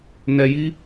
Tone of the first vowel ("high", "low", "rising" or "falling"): low